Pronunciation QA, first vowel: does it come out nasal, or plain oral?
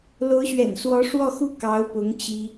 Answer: oral